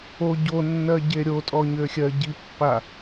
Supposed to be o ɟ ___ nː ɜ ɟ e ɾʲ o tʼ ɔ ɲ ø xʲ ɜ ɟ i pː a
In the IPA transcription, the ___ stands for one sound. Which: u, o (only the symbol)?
o